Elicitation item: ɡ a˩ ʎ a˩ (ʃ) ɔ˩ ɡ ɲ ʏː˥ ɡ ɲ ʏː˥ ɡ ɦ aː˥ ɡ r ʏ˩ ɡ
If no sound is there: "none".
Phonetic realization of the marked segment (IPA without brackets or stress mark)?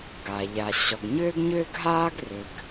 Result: ɕ